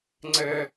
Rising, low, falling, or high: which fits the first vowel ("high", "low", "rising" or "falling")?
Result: high